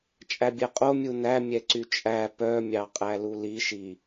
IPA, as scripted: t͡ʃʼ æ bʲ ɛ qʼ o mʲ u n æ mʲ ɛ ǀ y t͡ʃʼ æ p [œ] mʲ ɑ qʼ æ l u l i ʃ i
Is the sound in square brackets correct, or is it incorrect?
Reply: correct